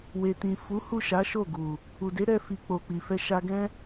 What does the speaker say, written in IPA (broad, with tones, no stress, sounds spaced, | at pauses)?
w e˨ t ĩ˨ f u˨˦ h u˦˨ ʃ a˨˦ ʃ o˦˨ ɡ u˨ | u˨ d e˨˦ ɾ ɛ˧ f i˨ k͡p o˨ k͡p i˨ f ɛ˧ ʃ a˧ ɡ ɛ̃˦